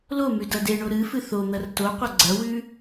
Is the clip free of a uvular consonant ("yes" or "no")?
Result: no